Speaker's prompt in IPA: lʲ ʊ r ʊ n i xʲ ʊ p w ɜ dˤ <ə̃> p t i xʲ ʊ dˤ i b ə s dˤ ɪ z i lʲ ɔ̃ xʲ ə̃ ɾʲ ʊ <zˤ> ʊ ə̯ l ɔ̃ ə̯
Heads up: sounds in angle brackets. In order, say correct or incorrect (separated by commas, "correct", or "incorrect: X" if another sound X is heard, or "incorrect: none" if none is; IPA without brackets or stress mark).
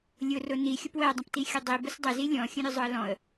correct, correct